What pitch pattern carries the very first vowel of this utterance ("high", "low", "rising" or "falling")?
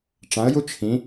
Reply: rising